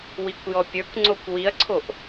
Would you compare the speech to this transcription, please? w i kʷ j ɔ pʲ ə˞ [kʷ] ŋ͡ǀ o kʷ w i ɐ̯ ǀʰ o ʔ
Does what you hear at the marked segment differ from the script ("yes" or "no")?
no